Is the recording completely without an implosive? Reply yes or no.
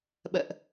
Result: no